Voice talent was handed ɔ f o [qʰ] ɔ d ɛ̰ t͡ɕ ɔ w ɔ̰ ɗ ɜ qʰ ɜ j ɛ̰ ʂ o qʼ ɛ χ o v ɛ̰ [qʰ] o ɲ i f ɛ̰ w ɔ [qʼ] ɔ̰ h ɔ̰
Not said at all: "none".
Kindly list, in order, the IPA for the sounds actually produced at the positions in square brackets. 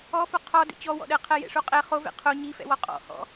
qʰ, qʰ, qʼ

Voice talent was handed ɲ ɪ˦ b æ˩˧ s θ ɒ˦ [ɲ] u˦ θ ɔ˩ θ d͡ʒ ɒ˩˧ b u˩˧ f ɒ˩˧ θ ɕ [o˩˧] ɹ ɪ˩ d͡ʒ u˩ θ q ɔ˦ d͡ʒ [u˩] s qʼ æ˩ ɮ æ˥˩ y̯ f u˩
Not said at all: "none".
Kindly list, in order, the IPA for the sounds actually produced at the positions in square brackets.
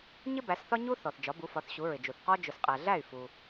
ɲ, u˩˧, ʊ˩

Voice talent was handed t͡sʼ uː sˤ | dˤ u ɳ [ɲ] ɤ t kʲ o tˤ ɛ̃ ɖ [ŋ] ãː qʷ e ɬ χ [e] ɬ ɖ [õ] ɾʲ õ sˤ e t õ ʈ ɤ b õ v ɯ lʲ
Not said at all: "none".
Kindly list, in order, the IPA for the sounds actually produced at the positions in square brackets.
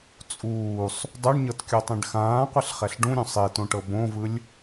ɲ, x, ɛ, ũ

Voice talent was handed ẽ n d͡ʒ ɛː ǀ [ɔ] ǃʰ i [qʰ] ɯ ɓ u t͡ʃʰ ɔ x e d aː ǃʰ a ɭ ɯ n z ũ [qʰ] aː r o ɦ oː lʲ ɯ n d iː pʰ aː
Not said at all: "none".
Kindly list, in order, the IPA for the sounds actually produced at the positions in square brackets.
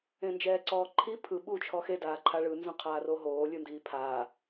ɔː, pʰ, qʰ

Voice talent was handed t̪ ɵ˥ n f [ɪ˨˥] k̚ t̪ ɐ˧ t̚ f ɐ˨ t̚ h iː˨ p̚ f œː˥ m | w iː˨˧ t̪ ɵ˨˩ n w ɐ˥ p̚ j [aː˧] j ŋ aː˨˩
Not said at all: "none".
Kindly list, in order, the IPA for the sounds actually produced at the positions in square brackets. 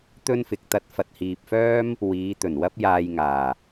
ɪ˨, aː˧

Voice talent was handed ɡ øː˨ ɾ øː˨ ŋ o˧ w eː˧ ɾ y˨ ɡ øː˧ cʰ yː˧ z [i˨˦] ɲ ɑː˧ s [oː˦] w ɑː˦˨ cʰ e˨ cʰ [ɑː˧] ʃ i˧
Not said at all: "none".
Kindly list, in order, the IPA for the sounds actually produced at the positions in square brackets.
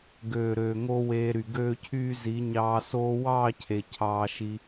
i˨˦, oː˦, ɑː˧

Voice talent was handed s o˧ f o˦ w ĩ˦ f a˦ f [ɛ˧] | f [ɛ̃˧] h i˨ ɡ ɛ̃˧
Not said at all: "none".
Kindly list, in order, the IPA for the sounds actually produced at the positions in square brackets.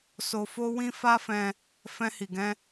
ɛ̃˧, ɛ̃˧

